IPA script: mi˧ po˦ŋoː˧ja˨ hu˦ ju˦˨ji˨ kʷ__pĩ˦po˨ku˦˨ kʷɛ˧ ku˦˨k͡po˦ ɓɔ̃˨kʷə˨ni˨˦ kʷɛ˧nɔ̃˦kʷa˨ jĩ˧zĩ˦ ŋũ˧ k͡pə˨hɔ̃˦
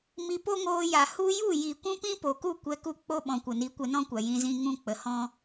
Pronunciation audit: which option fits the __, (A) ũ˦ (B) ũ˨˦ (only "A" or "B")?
A